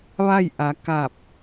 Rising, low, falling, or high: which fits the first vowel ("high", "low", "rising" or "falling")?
falling